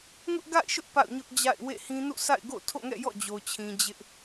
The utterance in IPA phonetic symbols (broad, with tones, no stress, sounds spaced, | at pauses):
ŋ ʊ˦ ʔ ɡ a̰˦˨ ɪ̯ ʃ ʊ˦ ʔ p a̰˦˨ ʊ̯ ɲ ʊ˦ ʔ d͡ʑ a̰˦˨ ɪ̯ w ḛ˦˨ h ĩ˦ n ṵ˦˨ sʰ a̰˦˨ ɪ̯ ɡ o̰˦˨ tʰ o̰˦˨ ŋ ɛ̰˦˨ j ɔ̰˦˨ d͡ʑ o˨ t͡ɕʰ ĩ˨ d͡ʑ ɪ˦ ʔ